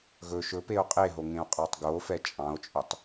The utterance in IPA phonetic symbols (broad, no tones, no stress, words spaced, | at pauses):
ɣɵ ʃɵpeo̯ qʼeɦoŋẽo̯qʼɑtˤ ɡofɛ t͡ʃʼɑ̃o̯t͡ʃʼɵtˤ